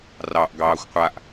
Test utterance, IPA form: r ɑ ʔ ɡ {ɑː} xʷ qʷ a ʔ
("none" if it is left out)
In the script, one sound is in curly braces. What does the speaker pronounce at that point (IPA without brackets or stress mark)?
ɑː